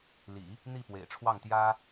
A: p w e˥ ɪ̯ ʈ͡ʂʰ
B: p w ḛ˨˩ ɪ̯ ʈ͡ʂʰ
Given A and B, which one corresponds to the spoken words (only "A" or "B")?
B